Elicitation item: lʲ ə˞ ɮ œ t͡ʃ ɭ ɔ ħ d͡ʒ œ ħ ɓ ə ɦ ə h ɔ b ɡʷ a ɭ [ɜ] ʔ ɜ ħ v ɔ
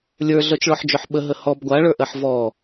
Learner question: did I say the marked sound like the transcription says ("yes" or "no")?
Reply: no